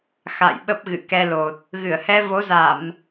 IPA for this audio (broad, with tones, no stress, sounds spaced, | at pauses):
x a̰˧˨ j ɓ ə˦˥ p̚ ɣ ɨ̰˧˨ k ɛ˧ l o˨˩ t̚ | ɣ ɨ˧˩ ə̯ h ɛ˧ v o˨˦ z a˧˩˨ m